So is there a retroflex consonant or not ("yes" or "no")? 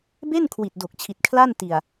no